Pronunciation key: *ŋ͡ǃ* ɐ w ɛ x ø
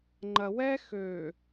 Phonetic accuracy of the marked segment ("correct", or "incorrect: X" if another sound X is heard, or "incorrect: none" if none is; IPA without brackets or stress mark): correct